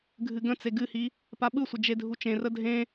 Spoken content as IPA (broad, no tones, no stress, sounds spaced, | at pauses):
ɡʱ ɨ ɡ ə̃ t͡s e ɡ ɨ h i | p a ɓ ɯ sʷ ə d͡ʒ e dʱ u t͡ʃ ẽ r ə dʱ ẽ